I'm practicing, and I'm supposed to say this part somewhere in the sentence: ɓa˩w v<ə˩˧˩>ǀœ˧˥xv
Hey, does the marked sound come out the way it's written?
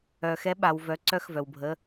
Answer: no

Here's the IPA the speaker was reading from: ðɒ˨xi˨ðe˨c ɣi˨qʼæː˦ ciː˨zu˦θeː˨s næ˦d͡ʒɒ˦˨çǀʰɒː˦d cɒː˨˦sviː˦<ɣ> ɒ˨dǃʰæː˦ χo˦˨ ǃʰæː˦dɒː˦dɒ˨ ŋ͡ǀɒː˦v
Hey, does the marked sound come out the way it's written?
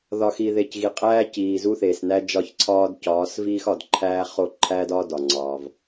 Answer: no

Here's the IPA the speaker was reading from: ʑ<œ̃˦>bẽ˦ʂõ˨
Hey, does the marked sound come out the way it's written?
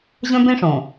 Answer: yes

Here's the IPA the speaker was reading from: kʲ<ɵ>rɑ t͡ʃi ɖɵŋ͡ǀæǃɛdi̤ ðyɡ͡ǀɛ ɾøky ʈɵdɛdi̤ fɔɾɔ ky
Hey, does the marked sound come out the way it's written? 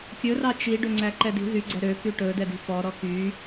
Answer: yes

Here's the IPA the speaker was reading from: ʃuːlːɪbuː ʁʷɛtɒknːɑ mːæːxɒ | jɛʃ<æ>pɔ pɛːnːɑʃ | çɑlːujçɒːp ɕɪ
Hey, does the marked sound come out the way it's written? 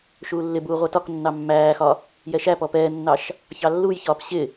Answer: yes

